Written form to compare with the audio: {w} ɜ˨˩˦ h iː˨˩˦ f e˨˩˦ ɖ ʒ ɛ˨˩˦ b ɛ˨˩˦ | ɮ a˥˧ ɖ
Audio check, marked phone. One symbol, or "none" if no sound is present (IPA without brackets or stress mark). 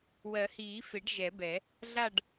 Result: w